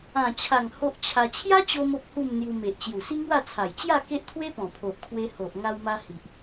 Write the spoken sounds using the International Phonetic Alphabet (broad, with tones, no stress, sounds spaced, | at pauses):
ã˨˩ t͡ɕʰ a˨˩ ŋ h o˦ ʔ t͡ɕʰ a˧ t͡ɕʰ j a˦ t͡ɕ o˧ m o˦ p̚ h u˥˧ m n̪ j u˧ m e˨ ʔ t͡ɕ j u˨˩ s i˦ ŋ w a˥˧ t͡sʰ a˨˩ j t͡ɕ j a˥˧ k e˦ ʔ t̪ʰ w e˦ p ɔ̃˨˩ pʰ o˨ ʔ kʰ w e˧ h o˨ ʔ ŋ a˧ w m a˧ h i˨ ʔ